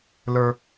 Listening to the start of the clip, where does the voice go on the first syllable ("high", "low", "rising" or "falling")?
low